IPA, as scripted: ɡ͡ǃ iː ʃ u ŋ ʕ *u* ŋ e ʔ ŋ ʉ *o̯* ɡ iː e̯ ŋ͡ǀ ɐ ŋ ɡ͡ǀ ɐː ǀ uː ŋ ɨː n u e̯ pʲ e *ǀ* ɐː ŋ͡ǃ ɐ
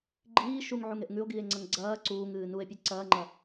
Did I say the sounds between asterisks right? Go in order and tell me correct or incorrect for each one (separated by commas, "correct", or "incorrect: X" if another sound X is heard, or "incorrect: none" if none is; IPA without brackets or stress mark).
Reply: correct, correct, correct